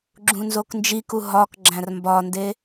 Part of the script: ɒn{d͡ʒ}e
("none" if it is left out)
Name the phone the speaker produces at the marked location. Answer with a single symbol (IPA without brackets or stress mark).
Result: d